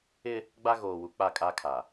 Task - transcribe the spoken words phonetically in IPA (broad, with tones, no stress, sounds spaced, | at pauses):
ɪ˦ | ɡ͡b a˦ ɣ oː˨ w u˨ k͡p a˦˨ kʼ a˦ kʰ a˨